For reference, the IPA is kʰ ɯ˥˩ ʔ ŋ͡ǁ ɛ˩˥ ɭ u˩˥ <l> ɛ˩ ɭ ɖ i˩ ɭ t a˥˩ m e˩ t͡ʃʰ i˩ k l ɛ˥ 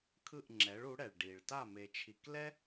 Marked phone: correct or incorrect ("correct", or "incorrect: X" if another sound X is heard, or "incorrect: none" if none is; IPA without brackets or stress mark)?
incorrect: ɽ